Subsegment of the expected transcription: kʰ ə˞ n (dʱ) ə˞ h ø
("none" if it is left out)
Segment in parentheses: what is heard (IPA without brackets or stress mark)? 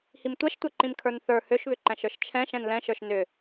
θ